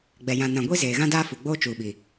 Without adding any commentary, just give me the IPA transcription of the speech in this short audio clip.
ɡ͡b ɛ˨ j ã˨ n ã˨ ɡʷ i˦ z eː˨ ɣ ã˦ d aː˦ f u˨ ɡ͡b oː˦ t͡ʃ uː˨ ɓ i˨

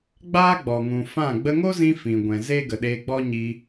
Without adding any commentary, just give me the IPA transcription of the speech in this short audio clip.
ɡ͡b aː˦ ɡ͡b ɔ˨ ŋ ũ˨ f ã˦˨ ɡ͡b ə˧ ŋ o˦ z ĩ˧ f ĩ˨ ɡʷ ɛ̃˨ z e˦ ɡ ə˨ ɗ eː˧ ɡ͡b ɔ˦ ɲ iː˧

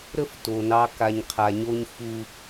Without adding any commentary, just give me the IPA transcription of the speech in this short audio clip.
ɾ ə˦ f t o˨ n ɑ˦ k a˨ ɲ qʰ a˨ ɲ o˦ ɲ f u˦

